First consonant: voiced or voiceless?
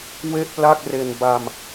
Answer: voiced